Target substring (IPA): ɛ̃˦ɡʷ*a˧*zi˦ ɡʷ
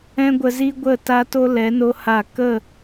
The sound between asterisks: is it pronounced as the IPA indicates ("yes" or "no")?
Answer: no